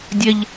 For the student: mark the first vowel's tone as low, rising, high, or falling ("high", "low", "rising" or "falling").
high